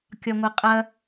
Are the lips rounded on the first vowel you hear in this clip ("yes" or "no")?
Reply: yes